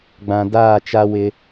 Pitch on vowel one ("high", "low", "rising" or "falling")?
low